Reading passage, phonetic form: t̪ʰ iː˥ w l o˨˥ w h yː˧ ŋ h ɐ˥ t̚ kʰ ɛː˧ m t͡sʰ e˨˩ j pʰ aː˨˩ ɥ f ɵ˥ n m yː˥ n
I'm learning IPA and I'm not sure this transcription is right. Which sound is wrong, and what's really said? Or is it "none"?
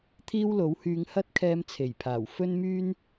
ɥ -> w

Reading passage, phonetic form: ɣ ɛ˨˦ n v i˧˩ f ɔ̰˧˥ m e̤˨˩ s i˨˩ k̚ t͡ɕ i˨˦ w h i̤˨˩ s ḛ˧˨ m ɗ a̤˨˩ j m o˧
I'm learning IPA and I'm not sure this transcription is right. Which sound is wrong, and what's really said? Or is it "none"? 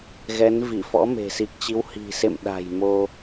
none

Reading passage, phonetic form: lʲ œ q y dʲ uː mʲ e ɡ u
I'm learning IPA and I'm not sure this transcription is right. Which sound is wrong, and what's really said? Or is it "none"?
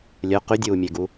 none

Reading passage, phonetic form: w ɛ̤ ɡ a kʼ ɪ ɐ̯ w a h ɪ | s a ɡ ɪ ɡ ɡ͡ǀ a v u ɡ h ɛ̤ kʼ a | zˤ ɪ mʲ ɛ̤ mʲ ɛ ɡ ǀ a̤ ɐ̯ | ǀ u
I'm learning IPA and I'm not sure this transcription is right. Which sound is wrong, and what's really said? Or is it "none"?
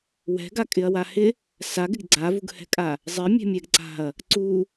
none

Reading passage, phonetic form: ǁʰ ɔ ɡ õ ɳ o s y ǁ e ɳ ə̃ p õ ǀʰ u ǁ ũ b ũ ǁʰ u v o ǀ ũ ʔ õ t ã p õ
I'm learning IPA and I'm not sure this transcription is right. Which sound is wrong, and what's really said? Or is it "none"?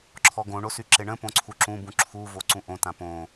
none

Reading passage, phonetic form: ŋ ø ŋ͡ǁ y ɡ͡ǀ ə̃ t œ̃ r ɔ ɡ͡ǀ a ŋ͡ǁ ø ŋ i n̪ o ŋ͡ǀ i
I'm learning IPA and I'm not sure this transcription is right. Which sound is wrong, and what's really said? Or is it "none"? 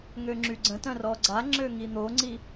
none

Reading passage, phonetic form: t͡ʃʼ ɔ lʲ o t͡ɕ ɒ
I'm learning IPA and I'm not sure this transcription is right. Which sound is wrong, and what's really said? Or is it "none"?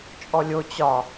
none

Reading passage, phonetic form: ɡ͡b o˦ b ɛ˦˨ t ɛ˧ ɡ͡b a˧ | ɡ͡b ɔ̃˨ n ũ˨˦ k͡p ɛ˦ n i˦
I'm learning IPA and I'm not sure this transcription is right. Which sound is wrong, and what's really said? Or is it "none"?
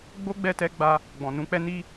b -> ɡ͡b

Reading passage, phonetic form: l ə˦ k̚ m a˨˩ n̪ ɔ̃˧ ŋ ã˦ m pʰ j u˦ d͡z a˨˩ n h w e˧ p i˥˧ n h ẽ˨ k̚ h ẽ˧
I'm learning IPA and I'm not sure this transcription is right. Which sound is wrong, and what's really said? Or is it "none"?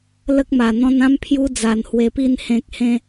ŋ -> n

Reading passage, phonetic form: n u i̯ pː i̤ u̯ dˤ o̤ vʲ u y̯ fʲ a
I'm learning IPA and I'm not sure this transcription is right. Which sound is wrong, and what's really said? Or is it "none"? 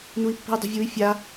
none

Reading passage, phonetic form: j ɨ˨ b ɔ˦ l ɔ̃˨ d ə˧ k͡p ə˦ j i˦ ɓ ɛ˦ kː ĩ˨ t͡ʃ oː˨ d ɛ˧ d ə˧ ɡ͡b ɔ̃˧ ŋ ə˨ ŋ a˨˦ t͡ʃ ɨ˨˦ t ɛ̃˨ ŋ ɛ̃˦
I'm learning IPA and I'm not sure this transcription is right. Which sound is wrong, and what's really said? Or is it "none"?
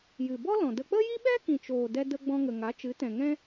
kː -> k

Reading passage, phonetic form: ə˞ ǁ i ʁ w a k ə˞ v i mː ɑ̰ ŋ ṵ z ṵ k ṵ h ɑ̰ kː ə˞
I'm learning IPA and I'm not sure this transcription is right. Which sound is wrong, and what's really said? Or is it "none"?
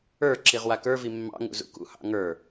kː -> ŋ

